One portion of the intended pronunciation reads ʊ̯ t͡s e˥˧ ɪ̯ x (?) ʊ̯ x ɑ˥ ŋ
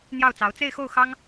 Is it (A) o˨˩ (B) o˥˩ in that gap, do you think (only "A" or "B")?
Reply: B